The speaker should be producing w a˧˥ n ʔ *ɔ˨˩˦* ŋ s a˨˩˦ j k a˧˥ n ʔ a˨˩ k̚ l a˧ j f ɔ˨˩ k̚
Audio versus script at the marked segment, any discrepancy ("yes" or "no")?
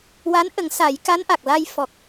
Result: yes